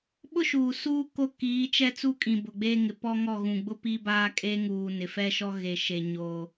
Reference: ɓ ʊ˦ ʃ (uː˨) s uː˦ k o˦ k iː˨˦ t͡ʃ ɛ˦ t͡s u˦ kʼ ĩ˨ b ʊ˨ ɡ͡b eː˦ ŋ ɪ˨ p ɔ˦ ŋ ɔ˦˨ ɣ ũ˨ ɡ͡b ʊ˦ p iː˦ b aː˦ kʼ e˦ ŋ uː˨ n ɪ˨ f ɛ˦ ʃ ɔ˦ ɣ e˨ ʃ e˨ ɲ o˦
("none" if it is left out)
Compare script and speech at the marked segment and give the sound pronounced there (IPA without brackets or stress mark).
uː˨